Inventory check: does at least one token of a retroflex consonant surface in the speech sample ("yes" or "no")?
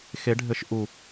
yes